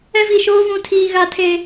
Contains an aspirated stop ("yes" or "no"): yes